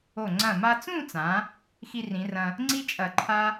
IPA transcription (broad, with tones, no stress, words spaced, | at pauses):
o˧˩ ŋ͡ǀɐ̃˧˩ma˧t͡sũ˥˧t͡sã˩˧ | xi˧rĩ˩˧rɐ̃˧ | ŋ͡ǀi˥t͡ʃʼɐ˧˩ ǃʰa˥